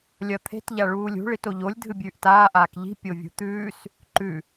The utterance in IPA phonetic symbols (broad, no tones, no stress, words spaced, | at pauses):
lʲɐt̪ʰe̤t ʎaɭuːlʲṳ ɭitoʎolʲ dʱɨbʲʉːʔtaː ʔaːkʎi̤ pʲovʲṳt̪ʉːs | ǃʉ